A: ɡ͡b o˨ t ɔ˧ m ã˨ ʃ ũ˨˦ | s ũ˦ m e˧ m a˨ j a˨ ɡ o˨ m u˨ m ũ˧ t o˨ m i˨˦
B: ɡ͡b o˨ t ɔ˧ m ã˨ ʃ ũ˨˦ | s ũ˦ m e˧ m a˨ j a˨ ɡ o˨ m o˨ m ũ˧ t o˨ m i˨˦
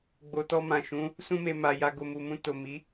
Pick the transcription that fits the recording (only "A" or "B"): A